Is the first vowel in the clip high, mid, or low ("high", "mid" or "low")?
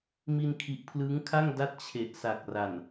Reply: high